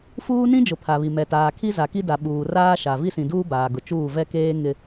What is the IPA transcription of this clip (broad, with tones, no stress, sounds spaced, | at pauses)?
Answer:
f uː˦ n ĩ˦ d͡ʒ ʊ˨ pʰ a˨ β i˨ m ɛ˨ t aː˨ kʰ i˦ z a˨ k i˦ d a˨ ɓ uː˨ r aː˦ ʃ a˨ v i˦ s ĩ˨ d uː˦ b aː˨ ɡ ʊ˨ t͡ʃ uː˦˨ v ɛ˦ k eː˦ ŋ ɪ˦